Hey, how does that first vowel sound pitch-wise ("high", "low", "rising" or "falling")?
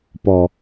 low